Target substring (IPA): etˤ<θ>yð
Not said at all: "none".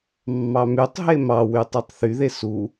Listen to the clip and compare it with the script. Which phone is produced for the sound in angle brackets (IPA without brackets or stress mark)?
θ